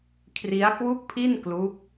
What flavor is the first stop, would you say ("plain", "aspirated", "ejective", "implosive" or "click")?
aspirated